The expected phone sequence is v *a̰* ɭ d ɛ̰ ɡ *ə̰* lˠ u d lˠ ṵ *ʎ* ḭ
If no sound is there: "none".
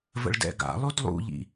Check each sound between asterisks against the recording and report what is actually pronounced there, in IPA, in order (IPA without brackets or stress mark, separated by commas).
ə̰, a̰, ʎ